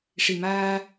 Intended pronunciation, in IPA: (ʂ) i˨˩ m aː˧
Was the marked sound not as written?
no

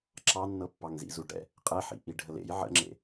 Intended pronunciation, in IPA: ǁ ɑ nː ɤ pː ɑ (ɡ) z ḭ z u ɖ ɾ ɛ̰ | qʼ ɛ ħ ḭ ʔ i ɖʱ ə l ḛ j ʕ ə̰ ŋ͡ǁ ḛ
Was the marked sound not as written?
yes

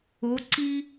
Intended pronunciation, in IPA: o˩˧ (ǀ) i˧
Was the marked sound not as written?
no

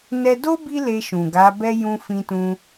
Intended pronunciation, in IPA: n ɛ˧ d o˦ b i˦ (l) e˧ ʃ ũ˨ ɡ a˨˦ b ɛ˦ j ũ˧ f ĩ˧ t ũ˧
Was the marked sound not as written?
no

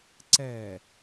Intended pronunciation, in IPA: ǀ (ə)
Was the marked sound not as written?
yes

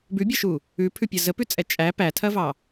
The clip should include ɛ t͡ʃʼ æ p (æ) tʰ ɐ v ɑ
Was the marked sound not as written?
no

